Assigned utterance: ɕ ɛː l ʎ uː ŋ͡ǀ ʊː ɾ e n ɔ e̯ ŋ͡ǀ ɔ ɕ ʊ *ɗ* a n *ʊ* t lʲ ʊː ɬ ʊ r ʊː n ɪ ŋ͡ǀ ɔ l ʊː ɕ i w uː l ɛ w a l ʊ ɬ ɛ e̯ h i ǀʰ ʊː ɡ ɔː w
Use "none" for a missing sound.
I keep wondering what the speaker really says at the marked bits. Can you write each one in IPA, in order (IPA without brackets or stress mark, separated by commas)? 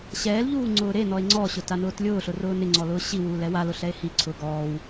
t, ʊː